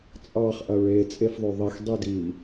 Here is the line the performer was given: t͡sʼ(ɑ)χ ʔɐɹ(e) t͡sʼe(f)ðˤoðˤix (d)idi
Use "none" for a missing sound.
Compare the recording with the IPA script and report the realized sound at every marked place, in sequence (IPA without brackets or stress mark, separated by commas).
ɑ, e, f, dˤ